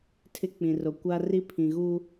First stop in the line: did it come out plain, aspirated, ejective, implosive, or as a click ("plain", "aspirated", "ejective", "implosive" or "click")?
aspirated